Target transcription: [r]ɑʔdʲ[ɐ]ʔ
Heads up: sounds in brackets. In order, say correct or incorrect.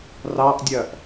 correct, correct

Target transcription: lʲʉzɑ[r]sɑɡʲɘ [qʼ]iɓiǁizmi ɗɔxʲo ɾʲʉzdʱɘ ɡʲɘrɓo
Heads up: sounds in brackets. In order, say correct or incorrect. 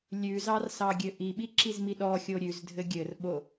correct, incorrect

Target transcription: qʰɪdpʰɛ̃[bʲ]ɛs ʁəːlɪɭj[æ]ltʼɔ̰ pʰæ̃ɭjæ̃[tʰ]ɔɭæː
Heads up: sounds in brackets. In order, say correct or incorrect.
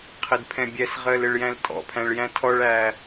correct, incorrect, correct

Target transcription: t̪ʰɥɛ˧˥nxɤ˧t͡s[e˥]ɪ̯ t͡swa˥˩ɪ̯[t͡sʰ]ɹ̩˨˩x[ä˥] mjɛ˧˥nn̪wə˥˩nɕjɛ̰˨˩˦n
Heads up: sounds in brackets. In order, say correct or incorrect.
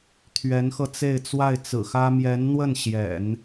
incorrect, incorrect, correct

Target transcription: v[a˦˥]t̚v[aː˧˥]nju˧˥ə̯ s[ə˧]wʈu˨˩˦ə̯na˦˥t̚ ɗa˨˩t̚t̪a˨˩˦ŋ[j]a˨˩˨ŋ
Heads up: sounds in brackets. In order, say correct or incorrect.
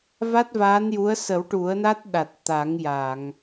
correct, correct, incorrect, correct

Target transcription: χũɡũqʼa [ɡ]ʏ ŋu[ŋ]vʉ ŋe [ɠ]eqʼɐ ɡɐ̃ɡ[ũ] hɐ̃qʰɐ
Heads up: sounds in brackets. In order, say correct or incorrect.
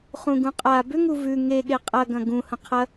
incorrect, incorrect, correct, correct

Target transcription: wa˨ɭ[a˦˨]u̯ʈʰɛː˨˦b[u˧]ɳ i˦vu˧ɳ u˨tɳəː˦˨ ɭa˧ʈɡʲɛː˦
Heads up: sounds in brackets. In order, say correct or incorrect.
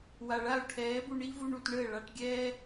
correct, correct

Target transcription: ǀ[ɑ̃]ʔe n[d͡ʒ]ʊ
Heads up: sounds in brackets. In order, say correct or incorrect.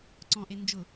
incorrect, correct

